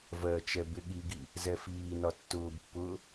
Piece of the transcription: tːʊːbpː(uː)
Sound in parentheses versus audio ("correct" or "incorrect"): incorrect